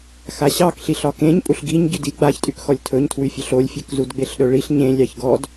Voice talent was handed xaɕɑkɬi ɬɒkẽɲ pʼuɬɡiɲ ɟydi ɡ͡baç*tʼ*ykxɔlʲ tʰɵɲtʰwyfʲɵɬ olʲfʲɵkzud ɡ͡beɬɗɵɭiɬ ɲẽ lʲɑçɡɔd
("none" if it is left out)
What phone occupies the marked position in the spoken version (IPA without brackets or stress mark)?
tʼ